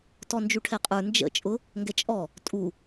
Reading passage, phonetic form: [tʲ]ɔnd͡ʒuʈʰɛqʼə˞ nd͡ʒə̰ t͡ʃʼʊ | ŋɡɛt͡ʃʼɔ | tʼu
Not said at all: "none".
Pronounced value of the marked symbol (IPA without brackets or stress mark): t